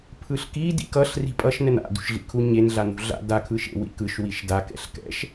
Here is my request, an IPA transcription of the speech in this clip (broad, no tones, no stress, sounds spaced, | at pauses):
pʰ ɯ ɬ k i d ḭ k ʌ ɬ r i̤ pʼ ʌ ʃ n ɛ n a̰ d ṳ ʃ ɮ ḭ kʰ u ɲ e n ɮ a n ṳ ɮ a̰ d a kʰ ɯ ʃ ḛ w ḭ k ɯ ʃ w i ʃ d a k ɛ̰ ɬ k ɛ̰ ʃ